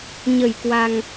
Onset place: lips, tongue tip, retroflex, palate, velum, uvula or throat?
palate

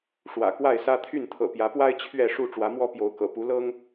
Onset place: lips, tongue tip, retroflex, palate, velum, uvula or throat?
retroflex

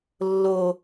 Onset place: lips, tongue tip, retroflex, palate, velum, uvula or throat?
tongue tip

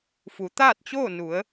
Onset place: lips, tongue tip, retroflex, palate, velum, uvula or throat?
lips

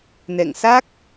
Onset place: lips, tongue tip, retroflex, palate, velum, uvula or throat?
tongue tip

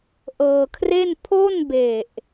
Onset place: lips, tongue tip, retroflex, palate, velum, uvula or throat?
throat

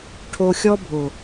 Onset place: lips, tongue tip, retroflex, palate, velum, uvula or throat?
retroflex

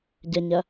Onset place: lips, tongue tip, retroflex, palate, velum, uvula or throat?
palate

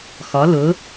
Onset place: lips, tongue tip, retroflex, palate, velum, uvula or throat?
velum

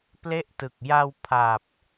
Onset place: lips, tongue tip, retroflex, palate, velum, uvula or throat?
lips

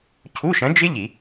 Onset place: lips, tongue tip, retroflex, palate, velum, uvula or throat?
palate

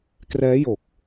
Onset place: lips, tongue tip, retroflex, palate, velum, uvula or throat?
velum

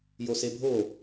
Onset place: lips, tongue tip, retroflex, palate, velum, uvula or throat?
palate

